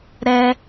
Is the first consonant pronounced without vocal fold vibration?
no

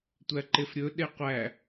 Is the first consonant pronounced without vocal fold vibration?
yes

